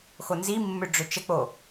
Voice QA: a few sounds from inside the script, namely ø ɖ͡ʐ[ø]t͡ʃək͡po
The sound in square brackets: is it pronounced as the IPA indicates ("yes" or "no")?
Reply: yes